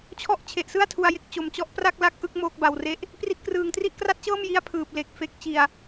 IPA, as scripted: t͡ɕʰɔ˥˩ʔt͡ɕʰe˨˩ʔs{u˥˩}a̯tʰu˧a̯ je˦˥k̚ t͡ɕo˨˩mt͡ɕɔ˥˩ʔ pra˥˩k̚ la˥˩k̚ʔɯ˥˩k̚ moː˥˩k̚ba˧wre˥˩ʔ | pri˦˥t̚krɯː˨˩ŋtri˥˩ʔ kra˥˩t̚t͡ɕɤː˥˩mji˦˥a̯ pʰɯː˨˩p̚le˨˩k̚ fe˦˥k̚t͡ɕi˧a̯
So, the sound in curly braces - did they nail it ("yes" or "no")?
no